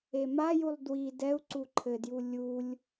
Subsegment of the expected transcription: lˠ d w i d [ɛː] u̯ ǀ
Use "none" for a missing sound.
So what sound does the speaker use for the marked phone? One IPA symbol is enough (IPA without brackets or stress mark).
ɛ